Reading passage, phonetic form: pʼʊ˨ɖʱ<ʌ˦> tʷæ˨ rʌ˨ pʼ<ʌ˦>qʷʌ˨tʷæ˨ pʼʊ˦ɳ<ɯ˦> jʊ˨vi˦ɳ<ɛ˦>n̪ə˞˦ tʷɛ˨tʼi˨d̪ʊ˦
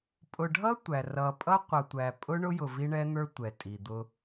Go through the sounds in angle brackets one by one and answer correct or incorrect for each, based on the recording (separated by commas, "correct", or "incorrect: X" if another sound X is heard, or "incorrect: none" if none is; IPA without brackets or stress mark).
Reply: correct, correct, incorrect: ʊ˦, correct